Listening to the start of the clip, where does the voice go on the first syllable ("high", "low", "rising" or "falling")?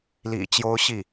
low